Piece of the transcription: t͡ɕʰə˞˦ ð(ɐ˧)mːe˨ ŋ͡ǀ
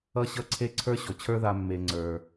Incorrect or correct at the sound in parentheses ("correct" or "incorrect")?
incorrect